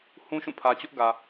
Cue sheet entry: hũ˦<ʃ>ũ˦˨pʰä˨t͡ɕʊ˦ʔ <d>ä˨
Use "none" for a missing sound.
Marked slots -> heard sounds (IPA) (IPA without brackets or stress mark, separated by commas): ʃ, ɡ